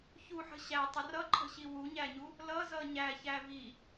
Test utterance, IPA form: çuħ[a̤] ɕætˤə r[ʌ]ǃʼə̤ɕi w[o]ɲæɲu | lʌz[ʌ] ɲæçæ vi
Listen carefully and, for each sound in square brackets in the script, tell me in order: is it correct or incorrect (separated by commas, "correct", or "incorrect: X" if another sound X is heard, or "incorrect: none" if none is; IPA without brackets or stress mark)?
incorrect: ə̤, correct, incorrect: u, correct